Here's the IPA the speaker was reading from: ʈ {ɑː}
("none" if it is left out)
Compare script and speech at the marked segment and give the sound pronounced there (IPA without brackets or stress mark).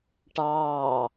ɑː